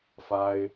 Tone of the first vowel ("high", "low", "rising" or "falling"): high